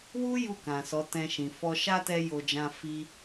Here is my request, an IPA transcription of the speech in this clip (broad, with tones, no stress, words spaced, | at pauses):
wu˦ ju˦˨kã˨ sɔ˨˦tɛ̃˧ʃĩ˨ fɔ˧ ʃa˦tɛ˧ jo˧d͡ʒã˦ fi˦